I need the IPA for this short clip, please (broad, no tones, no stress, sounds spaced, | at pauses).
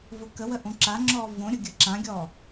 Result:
v ʊ k ə w ə ʔ õ ǁ a ŋ͡ǁ ɔː v õ ɾʲ ʊ ɡʲ ə ǁ ã ɡʲ ɔː